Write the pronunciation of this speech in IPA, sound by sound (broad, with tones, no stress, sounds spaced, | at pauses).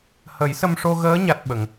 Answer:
h ə˨˩˦ j s ə˧ m ʂ o˧ ɣ əː˧˥ ɲ a˦˥ t̚ ɓ ə˨˩˦ ŋ